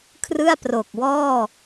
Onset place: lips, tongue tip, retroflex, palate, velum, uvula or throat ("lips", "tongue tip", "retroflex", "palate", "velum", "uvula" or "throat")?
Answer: velum